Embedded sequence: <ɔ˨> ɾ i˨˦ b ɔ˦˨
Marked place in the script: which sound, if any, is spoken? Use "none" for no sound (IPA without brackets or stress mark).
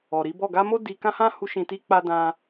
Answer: ɔ˨